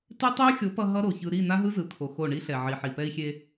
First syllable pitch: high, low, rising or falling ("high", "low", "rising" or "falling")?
high